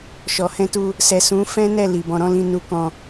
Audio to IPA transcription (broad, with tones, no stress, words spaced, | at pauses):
ʃɔ˨hɛ̃˧tu˧ | sɛ˨sũ˨˦ fɛ̃˦nɛ˦˨li˨ bɔ̃˨ɾɔ̃˧ lĩ˧nu˧kɔ̃˧